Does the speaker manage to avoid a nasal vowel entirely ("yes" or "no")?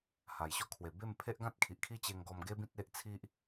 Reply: no